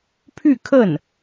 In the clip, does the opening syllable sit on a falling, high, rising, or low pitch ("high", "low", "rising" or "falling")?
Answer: falling